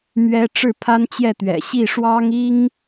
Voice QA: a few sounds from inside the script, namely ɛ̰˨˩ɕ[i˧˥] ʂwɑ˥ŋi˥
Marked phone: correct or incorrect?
incorrect